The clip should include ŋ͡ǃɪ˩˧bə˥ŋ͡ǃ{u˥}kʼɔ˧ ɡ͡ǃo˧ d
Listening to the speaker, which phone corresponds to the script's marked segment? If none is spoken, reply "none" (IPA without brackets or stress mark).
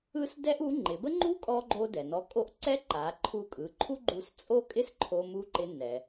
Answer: u˥